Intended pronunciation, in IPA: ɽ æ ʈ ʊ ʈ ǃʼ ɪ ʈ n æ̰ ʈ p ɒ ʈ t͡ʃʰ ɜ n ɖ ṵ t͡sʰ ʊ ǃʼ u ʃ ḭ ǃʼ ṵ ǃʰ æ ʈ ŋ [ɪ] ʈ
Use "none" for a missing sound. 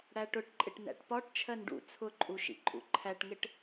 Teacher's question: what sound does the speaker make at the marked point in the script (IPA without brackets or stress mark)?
ɪ